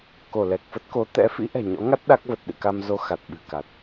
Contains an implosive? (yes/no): yes